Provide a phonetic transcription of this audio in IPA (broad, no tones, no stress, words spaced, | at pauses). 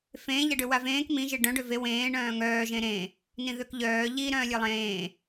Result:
fẽːʎaɖø wavẽːk mĩʒe ɖœ̃ɖø ve wẽː ɳœ̃ːŋœːʒẽ ɾẽ | nĩðøkʎœː ʎiɾœ̃ːlʲe lˠẽː